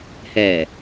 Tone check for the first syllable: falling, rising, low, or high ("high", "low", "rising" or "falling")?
low